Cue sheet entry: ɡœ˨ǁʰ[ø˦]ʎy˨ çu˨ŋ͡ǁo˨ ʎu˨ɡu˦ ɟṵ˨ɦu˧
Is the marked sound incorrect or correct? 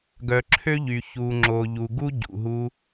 correct